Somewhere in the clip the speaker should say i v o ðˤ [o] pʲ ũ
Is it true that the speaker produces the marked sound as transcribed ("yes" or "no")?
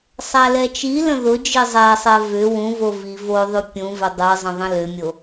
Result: no